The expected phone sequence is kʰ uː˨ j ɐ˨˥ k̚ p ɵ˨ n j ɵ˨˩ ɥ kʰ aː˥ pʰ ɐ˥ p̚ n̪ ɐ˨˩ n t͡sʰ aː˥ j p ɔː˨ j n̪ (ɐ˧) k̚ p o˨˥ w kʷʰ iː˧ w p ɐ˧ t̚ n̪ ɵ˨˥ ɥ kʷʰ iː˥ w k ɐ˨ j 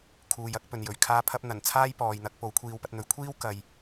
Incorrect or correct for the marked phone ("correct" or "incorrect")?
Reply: correct